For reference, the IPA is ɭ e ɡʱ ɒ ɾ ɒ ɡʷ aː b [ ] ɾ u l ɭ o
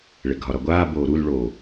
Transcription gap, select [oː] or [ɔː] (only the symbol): oː